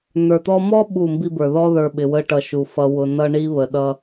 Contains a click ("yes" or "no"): no